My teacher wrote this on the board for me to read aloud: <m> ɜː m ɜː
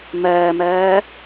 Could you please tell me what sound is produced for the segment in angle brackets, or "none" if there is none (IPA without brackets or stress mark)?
m